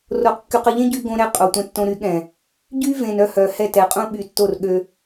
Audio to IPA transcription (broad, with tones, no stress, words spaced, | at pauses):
ro˨qkːy˨qə˨ʎẽ˦ ɟy˦ɡõ˦ɾɛ˦ qʼo˨ tʷɛ̃˨tːõ˨ ɾy˨˦ɠɛ̃˨ | ɟy˦vẽ˨n œ˦hœ˨ hɛ˦˨tɛ˨qʼũ˦ ɓy˨tːo˦˨r ɠø˦